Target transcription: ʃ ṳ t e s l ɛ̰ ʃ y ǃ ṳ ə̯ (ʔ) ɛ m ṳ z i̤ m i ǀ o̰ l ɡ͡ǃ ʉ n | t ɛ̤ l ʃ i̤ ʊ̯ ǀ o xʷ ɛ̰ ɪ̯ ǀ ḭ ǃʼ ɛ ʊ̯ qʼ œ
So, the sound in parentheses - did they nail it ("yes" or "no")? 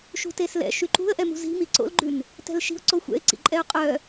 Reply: yes